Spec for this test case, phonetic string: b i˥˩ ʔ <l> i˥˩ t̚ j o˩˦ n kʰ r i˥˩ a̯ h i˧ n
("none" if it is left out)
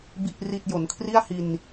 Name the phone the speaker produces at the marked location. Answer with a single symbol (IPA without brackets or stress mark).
r